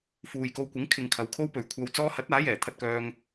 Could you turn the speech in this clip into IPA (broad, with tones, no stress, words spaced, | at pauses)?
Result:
fuː˨jko˧wkʷɪ˨˥ŋ kʰɪ˨ŋ kʰɐ˨˧wkʰo˥wpɵ˨ɥ kʷʰɐ˧w t͡sɔː˧hɐ˨˥t̚ aː˨˥jɛː˨˩t̪ʰɐ˧t̚kœː˧ŋ